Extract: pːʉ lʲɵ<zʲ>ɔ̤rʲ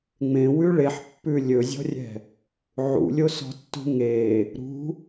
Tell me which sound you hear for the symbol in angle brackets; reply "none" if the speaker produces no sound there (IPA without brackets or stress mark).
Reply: zʲ